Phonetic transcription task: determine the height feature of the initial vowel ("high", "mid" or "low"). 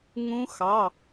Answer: high